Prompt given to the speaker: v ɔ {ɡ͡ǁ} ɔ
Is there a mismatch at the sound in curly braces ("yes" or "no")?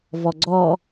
yes